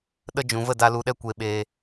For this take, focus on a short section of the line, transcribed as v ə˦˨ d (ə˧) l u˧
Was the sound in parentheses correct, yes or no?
no